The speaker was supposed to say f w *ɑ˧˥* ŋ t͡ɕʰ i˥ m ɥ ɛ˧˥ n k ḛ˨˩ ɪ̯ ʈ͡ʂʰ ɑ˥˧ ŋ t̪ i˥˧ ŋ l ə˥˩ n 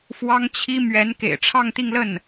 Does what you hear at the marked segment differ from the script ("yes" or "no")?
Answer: yes